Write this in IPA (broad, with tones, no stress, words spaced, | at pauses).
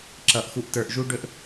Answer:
ǁʌ˨ʔ xu˨ʔtə˞˨ʔ ʒu˦ɖɵ˦ʔ